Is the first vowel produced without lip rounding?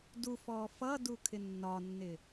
no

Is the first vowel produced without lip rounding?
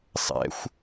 yes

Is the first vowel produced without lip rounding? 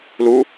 no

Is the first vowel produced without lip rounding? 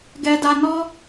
yes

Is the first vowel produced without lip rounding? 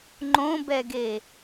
no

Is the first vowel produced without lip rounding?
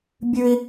no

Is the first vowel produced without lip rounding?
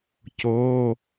no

